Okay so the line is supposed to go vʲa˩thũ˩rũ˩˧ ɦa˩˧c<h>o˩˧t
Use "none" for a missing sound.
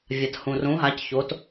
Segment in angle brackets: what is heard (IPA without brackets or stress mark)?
ç